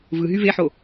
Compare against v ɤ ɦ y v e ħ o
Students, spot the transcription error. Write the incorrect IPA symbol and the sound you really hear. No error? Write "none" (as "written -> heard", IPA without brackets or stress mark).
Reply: ɤ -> ɯ